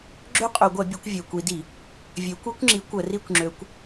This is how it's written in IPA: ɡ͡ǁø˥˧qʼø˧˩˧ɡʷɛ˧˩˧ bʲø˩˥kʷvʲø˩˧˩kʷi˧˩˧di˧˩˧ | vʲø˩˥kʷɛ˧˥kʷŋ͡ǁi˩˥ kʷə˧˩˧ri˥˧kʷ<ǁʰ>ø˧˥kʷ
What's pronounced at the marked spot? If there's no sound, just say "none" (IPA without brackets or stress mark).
ŋ͡ǁ